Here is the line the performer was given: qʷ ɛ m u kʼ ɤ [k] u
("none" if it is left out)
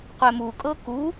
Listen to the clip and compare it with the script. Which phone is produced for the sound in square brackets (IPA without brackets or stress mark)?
k